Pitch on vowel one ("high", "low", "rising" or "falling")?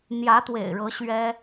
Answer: rising